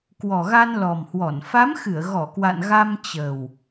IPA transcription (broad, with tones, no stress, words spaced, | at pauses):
kwɔ˨˩ɣa˧nlɔ˨˩mhwɔ˧˩n fa˨˦mxɨ˧˩ə̯ɣɔ˧˩kwa̰˧˨n ɣa˧mt͡ɕə˨˩w